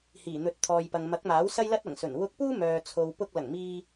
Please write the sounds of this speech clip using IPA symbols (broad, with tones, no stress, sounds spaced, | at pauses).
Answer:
h iː˨˩ n̪ ɵ˨˥ t̚ t̪ʰ ɔː˨ j p ɐ˨ ŋ m ɐ˨˥ k̚ m aː˨˥ w s ɐ˥ j l ɐ˥ t̚ ɐ˨˩ ŋ s ɵ˨˩ n w ʊ˧ k̚ p uː˥ m œː˨ t͡sʰ o˨ w p ʊ˧ k̚ l ɐ˨˩ ŋ m iː˧